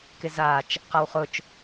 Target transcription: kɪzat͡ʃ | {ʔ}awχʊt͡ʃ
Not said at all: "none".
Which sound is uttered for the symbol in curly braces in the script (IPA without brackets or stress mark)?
q